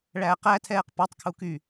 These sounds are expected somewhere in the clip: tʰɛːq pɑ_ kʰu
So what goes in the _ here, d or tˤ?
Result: tˤ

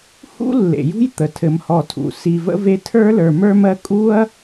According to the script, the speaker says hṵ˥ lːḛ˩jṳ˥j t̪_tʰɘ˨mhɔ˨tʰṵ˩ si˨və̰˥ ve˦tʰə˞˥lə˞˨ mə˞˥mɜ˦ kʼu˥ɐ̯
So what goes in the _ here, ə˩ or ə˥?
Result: ə˩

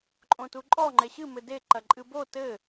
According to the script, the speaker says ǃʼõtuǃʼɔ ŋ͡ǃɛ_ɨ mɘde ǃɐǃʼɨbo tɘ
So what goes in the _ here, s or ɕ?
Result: ɕ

